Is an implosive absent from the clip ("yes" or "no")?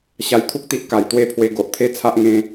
yes